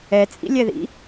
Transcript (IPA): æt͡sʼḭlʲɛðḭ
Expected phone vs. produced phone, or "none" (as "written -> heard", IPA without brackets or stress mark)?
æ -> ɛ